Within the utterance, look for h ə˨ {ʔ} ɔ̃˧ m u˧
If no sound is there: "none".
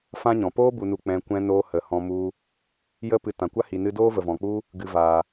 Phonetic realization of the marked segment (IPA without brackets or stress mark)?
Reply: h